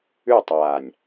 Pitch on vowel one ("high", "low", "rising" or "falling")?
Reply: falling